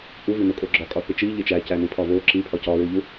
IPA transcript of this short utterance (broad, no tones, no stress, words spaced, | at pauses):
ʔuvinokʼo ɡ͡ǁɒkʼɒθi t͡ʃiʎe t͡ʃæcænipʰɒ vo ǁipʰɒ cɒɹuʎu